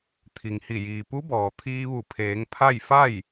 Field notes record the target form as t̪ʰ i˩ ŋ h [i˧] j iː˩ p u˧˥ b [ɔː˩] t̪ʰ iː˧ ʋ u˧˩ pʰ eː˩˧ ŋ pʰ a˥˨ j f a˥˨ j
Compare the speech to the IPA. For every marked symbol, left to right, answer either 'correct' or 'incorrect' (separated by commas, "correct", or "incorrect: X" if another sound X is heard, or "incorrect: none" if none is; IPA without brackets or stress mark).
incorrect: i˧˩, correct